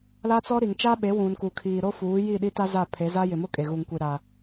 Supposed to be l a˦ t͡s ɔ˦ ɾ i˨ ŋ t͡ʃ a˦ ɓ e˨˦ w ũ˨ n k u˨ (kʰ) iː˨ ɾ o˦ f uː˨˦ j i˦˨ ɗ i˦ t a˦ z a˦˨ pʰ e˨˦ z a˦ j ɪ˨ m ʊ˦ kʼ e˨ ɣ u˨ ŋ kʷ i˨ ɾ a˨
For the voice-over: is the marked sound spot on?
yes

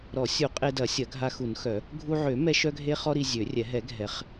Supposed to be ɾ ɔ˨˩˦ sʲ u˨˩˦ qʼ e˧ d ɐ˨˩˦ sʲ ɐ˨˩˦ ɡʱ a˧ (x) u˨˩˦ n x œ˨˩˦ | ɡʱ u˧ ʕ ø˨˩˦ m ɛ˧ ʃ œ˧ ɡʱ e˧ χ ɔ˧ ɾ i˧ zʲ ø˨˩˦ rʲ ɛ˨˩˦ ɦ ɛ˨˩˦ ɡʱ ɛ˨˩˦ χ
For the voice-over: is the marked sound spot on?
yes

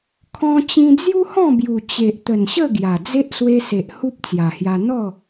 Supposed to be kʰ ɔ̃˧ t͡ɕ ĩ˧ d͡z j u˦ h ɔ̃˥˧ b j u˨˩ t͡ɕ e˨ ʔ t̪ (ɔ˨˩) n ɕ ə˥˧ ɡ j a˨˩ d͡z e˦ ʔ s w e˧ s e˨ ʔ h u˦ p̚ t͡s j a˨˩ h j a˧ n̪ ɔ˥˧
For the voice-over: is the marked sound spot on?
no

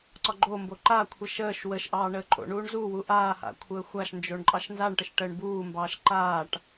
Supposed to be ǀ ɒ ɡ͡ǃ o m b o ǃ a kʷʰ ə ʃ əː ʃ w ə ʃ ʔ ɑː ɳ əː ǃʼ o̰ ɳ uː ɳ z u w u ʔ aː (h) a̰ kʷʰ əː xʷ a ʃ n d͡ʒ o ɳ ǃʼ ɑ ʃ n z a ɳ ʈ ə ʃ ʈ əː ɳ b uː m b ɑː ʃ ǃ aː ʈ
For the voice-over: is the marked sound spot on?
yes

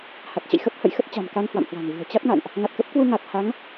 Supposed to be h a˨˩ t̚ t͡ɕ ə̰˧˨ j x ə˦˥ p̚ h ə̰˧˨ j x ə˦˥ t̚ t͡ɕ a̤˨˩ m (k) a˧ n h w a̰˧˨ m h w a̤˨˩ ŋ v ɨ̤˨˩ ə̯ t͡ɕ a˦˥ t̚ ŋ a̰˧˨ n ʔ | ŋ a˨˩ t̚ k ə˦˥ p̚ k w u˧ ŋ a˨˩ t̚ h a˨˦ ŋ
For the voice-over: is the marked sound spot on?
yes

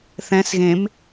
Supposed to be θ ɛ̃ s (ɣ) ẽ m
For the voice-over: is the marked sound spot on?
yes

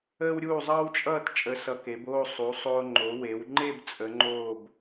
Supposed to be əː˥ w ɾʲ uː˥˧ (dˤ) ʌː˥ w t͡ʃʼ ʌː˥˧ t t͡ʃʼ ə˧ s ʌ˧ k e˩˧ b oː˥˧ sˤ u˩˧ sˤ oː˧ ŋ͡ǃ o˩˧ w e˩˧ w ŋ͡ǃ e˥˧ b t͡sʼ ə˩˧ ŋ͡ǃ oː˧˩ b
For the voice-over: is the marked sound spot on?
no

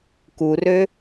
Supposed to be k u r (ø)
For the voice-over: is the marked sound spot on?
yes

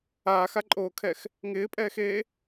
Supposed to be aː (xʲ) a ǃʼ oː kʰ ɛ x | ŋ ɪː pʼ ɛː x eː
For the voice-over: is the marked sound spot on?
no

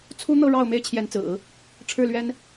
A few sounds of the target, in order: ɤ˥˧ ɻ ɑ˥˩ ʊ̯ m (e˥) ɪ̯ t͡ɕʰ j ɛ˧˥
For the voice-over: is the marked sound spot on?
yes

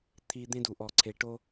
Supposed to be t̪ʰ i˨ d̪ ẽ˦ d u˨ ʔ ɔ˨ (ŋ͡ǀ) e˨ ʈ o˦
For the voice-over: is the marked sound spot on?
no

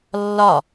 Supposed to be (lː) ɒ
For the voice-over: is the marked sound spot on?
yes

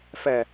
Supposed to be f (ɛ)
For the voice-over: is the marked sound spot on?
yes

